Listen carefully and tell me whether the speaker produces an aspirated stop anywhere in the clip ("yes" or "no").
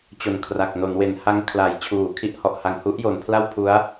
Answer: yes